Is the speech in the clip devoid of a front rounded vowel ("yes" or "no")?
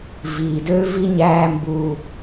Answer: no